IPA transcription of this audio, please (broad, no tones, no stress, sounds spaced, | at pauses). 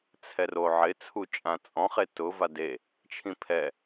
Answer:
t͡sʰ ɛ r o ʕ ɪ t͡sʰ u t͡ʃʼ ã t͡sʼ ɔ̃ χ e t ʊ v a d e | t͡ʃʰ ĩ pʰ ɛ